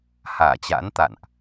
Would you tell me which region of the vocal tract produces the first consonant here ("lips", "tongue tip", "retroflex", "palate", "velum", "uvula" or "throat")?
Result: throat